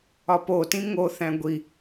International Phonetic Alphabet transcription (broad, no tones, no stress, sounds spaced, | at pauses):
ɒ p o t ĩ ŋ o θ æ̃ ɡʷ i